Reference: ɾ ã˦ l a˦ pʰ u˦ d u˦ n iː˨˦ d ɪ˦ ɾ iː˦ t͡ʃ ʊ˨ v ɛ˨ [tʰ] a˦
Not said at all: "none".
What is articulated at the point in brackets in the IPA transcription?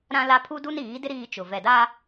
d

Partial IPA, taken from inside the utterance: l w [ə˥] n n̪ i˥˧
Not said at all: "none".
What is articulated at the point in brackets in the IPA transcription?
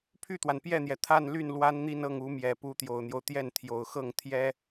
a˥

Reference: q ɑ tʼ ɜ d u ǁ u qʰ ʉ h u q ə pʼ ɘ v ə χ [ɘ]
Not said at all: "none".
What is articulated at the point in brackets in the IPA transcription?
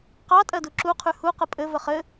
ɘ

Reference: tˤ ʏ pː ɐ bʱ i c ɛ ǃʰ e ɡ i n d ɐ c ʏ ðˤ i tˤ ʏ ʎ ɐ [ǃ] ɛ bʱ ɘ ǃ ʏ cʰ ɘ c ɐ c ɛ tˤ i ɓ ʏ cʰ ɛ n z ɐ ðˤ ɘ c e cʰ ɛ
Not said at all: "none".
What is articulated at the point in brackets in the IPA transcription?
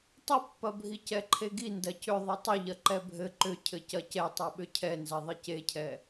ǃ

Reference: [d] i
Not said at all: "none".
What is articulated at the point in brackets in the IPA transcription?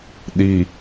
ɗ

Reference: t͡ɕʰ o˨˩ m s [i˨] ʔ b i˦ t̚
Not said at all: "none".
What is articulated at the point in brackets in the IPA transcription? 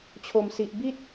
i˨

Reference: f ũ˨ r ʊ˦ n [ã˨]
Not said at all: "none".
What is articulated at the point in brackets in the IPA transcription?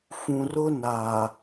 a˨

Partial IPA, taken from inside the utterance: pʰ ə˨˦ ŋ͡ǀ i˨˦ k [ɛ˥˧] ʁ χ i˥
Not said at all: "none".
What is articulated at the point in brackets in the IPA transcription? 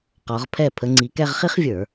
ɛ˥˧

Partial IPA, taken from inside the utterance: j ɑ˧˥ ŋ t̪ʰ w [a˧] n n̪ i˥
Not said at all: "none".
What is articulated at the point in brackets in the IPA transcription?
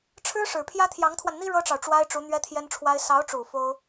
a˧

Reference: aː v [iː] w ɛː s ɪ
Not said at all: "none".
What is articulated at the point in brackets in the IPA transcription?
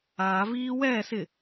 iː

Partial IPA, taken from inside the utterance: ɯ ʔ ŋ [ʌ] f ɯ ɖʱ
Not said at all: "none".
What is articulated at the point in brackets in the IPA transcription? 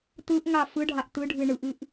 a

